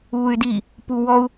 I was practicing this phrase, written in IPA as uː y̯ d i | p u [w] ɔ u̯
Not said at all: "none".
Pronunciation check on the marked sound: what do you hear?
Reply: w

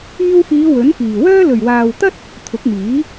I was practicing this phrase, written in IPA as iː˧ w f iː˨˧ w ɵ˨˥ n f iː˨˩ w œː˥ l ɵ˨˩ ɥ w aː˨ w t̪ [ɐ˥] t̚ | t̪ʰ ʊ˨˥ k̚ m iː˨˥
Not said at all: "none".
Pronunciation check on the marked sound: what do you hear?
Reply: ɐ˥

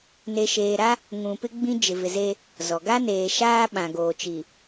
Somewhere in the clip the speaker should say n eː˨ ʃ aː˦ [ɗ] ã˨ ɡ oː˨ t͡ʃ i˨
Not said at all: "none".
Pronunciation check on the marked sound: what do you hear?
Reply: ɓ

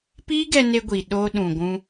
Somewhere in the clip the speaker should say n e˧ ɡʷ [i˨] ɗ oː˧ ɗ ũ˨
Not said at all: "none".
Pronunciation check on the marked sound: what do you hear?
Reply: i˨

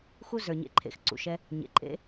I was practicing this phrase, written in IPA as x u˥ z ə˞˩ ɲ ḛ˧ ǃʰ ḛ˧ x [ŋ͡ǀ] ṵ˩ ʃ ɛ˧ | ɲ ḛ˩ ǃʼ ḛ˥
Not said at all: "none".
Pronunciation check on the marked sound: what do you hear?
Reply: ǀ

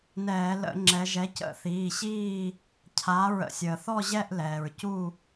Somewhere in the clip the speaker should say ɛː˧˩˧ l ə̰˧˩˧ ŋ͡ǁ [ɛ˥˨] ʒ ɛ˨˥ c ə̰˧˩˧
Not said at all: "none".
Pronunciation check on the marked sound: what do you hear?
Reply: ɛ˩˧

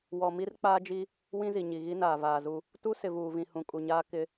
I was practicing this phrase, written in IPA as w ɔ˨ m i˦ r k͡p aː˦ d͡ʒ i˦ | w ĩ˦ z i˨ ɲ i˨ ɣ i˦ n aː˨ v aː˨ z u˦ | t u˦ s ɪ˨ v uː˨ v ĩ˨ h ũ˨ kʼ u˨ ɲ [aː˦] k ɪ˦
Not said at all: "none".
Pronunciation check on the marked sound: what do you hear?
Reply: aː˦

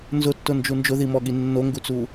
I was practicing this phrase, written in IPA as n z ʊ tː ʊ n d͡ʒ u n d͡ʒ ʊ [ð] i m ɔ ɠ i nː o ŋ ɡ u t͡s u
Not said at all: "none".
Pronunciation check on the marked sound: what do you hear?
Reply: ð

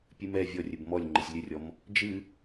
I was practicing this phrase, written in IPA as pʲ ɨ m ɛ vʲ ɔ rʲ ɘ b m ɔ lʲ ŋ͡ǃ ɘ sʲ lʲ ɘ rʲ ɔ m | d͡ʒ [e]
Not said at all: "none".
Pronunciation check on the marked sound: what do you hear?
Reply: ɨ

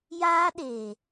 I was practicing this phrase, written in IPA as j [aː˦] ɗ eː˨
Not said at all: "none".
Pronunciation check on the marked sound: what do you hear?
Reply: aː˦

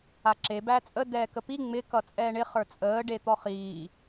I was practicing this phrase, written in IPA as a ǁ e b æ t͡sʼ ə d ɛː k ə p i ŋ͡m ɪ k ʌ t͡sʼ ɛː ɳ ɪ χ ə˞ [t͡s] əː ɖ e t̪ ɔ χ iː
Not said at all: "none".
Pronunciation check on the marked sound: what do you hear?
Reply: t͡sʼ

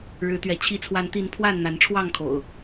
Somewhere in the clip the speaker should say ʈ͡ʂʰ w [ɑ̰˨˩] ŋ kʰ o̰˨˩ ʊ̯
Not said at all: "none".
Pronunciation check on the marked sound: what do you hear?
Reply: ɑ˥˨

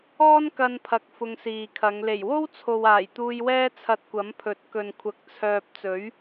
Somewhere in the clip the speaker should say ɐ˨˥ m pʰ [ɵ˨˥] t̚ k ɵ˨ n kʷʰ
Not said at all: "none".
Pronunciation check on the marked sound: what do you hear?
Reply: ɵ˨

